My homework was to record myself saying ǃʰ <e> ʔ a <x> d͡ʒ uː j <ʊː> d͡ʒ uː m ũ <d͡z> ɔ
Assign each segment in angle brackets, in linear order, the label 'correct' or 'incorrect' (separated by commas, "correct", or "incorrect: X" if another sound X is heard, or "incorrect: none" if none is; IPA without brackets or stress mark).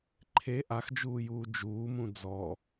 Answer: correct, correct, incorrect: uː, correct